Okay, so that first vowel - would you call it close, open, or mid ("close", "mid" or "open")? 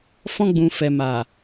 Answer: mid